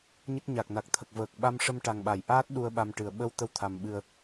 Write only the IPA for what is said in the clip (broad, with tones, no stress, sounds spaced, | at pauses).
ɲ ə˦˥ k̚ ɲ a˨˩ k̚ n a˨˩ k̚ t̪ʰ ə˨˩ k̚ v əː˨˩ k̚ ɓ a˧ m ʂ ə˧ m ʈ a˨˩ ŋ ɓ a˨˩˨ j ʔ aː˦˥ t̚ ɗ u˧ ə̯ ɓ a˧ m ʈ ɨ˨˩ ə̯ ɓ ə˧ w t̪ ə˧ w t̪ʰ a˨˩ m ɓ ɨ˨˩ ə̯